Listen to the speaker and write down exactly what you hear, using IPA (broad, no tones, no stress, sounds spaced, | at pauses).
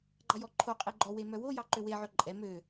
ɡ͡ǃ ɑ j ɔ ǃʰ o qʼ e ɡ͡ǃ ɔ w e m œ w o j ɑ ǃ ø w e ʕ œ ǃʼ ɛ m ø